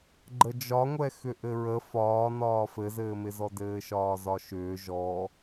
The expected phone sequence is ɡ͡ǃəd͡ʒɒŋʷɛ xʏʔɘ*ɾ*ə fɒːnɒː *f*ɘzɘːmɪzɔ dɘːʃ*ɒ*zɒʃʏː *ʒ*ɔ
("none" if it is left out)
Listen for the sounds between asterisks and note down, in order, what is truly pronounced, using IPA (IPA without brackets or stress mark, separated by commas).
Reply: ɹ, f, ɒː, ʒ